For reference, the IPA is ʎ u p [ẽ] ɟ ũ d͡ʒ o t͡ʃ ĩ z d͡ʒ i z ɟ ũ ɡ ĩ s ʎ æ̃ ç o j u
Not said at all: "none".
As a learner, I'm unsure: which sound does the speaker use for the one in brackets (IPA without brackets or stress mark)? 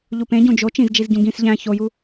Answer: ẽ